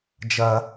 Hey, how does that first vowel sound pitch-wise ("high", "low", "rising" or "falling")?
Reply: high